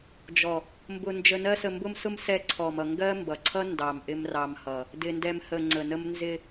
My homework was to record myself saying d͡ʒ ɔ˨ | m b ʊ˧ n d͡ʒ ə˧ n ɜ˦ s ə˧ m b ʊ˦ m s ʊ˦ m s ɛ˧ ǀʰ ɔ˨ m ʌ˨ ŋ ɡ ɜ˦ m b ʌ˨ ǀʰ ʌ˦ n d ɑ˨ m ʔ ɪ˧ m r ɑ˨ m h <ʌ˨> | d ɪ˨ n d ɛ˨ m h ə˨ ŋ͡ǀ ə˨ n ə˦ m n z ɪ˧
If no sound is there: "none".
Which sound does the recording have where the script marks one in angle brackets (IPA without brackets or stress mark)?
ʌ˨